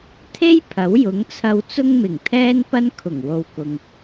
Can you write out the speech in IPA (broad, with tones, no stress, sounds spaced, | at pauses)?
t̪ʰ e˥ j pʰ ɐ˨˥ w j ʊ˨˥ ŋ t͡sʰ ɐ˧ w t͡s ʊ˥ ŋ m ɪ˨˩ ŋ t̪ʰ ɛː˥ n p ɐ˥ n kʰ ʊ˨˩ ŋ w o˨ w k ʊ˨ ŋ